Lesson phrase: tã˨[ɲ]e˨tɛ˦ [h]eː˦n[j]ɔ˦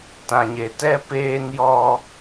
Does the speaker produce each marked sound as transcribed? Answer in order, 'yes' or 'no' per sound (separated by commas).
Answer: yes, no, yes